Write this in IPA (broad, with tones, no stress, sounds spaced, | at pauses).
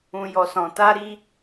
ũ˨ j ɔ˨ s ɔ̃˨ t a˧ ɾ i˦